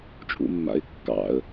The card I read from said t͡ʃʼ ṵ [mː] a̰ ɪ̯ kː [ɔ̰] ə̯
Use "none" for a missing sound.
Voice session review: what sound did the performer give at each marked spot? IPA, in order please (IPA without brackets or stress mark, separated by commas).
mː, ɑ̰